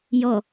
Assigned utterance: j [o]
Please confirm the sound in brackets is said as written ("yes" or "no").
no